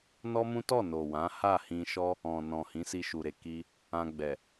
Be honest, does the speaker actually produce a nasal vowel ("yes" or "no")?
yes